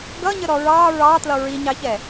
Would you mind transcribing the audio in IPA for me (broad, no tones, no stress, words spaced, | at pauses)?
ɡʌɲəɾɔ ɹɑ ɹɑtlʌ ɹiɲɑçɛ